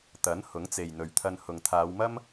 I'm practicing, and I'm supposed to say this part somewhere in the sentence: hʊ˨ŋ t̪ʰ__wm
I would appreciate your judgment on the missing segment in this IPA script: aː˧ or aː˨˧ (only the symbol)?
aː˨˧